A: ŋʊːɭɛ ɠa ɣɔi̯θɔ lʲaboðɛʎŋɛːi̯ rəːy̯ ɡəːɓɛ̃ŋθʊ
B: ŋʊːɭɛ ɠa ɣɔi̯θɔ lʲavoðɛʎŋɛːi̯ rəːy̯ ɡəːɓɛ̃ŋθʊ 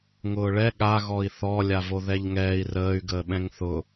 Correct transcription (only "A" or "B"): B